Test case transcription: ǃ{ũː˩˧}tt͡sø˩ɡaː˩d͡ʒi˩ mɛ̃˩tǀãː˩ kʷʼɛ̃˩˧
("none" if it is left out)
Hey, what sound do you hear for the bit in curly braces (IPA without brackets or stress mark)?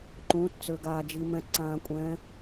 ũː˩˧